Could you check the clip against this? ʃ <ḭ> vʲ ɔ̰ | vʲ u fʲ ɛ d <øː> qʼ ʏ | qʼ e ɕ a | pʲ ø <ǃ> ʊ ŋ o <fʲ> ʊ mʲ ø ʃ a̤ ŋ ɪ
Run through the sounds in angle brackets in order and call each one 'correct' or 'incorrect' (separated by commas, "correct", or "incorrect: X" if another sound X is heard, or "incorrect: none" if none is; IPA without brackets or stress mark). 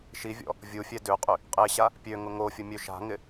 incorrect: i, incorrect: ø, incorrect: ŋ, correct